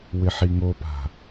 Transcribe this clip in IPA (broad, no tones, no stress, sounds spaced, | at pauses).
w ɪ ħ i ŋ o p a̤